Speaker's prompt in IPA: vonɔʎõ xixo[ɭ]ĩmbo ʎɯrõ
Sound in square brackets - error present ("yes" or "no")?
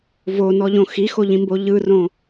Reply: yes